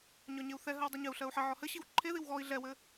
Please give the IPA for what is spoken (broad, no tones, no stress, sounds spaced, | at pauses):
ɲ ɒ ɲ e u̯ θ ɛ ɦ ɜ w dˤ i ɲ ɘ u̯ ɬ ɜ u̯ ħ ɘ ʕ ɔ h ɘ ɕ i w ǃʰ e ð i w ɣ ɔ i̯ ɮ ɛ w ɘ